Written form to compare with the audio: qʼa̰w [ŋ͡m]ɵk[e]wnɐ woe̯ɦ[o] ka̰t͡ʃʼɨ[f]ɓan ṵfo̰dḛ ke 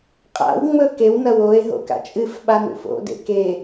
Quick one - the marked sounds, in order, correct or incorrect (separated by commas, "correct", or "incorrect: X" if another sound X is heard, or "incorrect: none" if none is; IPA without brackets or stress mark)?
correct, correct, incorrect: o̰, correct